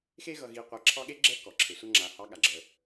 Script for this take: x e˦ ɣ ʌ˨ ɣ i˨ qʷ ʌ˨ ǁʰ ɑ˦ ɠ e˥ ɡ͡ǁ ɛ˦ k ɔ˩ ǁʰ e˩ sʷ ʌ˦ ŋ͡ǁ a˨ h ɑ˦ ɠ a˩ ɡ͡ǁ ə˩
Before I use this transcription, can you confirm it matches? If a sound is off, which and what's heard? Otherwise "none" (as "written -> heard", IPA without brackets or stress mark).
none